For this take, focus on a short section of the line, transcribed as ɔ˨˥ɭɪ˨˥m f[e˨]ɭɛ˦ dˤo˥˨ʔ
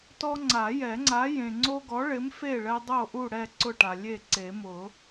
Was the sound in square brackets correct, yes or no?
no